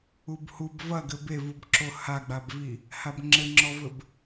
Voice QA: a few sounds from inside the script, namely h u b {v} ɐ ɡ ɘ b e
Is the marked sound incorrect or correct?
correct